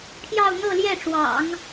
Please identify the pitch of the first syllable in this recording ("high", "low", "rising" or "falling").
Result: falling